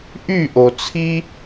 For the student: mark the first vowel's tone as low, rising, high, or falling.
falling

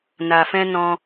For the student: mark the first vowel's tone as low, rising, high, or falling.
low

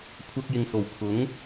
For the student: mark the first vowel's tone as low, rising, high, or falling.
high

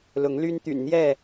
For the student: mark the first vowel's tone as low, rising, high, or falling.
rising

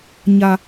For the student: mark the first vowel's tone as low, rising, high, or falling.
low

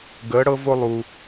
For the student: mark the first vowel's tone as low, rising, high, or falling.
rising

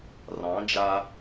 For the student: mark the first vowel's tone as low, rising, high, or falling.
rising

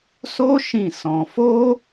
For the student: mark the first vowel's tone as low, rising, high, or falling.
high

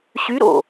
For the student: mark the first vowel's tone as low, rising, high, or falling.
rising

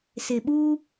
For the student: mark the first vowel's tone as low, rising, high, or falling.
low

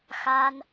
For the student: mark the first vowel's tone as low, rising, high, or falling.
high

